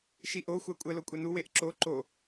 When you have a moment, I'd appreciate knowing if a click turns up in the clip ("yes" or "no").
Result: yes